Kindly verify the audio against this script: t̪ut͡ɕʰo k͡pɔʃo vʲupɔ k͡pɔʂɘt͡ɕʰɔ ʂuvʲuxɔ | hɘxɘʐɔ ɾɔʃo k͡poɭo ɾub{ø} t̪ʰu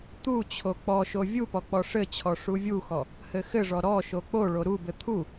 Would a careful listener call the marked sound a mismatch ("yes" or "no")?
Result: yes